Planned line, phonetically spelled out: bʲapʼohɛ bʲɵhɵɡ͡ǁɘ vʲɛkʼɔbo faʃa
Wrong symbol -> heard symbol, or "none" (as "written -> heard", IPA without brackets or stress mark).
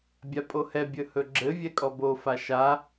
none